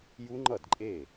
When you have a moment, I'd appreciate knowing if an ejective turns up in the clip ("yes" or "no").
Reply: yes